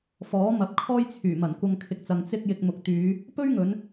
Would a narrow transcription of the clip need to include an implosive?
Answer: no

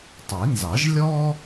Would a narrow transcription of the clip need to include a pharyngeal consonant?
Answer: no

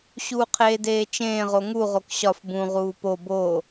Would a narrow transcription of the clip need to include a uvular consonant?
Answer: yes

